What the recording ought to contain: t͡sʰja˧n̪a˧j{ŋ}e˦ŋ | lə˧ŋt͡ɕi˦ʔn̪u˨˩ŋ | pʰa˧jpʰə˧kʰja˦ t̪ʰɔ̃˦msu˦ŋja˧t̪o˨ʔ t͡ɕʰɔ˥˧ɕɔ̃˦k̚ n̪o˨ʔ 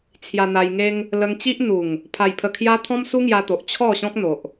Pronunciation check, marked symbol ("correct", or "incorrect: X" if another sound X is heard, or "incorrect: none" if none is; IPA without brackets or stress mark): correct